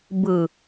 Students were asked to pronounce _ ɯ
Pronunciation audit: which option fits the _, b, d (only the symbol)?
b